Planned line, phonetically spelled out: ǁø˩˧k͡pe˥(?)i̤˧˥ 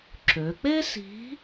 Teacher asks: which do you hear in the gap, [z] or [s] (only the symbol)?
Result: s